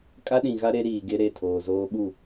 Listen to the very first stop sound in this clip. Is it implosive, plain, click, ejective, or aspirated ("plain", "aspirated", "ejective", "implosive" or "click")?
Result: ejective